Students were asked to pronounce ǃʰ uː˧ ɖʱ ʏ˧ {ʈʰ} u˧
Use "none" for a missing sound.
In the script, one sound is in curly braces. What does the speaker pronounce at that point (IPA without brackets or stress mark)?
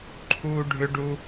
ɖ